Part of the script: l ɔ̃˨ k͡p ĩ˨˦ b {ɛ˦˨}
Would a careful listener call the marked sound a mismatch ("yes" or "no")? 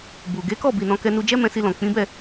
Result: no